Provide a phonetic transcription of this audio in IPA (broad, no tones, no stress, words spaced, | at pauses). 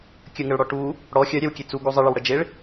kʲəŋəɭɽɔ ʈu | ɽɔ xʲœɾʲɛwkʲe t͡suɡu zˤəɭəwɽə d͡ʒeɭ